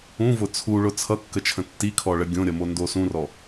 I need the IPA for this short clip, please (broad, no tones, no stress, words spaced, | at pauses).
ũvʊ t͡sʰuɭʊ t͡sʰʌkːət͡ʃʰə̃ tːikʰɔɭə ɡʲõɾʲʌmondo sũrɔ